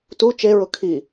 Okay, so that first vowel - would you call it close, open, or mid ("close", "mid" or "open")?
close